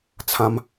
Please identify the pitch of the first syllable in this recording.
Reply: high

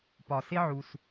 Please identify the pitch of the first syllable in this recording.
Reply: low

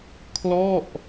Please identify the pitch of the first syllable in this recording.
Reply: falling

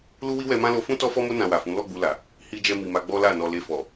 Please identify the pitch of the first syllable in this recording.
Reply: high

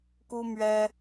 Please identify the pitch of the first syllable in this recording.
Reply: high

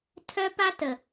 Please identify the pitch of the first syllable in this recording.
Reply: high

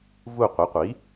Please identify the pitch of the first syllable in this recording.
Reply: falling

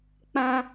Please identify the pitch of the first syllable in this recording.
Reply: high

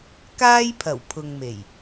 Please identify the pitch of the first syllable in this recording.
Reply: high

